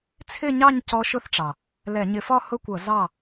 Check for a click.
absent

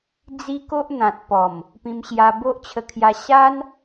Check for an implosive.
absent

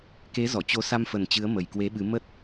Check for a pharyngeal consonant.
absent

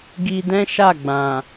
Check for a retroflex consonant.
absent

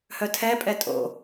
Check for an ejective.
present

